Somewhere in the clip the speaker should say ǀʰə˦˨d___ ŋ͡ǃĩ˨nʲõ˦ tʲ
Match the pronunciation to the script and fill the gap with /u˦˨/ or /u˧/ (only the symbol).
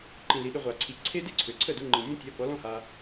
u˧